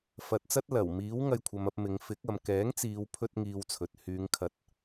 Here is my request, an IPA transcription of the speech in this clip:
f ɐ˨ t̚ t͡s ɐ˥ t̚ l ɐ˨˩ w m iː˨˥ w ŋ ɐ˧ j kʷʰ ɐ˨˧ m ɐ˧ p̚ m ɪ˨˧ ŋ f ɪ˨˥ k̚ ɐ˨ m k ɛː˨˥ ŋ t͡s iː˨˧ w pʰ ɵ˧ t̚ ŋ iː˧ w t͡sʰ ɵ˨ t̚ h yː˨˧ ŋ kʰ ɐ˨˥ t̚

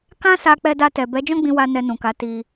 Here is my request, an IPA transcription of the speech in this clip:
k ã˦ s a˧ k͡p ɛ˧ d a˧ t ɛ˨ b ɛ˨˦ d͡ʒ ɔ̃˦ ɡ͡b ĩ˧ w a˧ n ɛ˧ n ũ˨ k a˨˦ t i˧

